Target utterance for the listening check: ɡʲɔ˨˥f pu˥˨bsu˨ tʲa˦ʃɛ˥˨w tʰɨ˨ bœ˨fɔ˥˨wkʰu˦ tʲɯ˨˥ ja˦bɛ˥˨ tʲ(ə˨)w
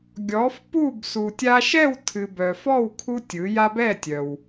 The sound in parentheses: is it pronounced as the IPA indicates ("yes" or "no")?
no